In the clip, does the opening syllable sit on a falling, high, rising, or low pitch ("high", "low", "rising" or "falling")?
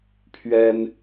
high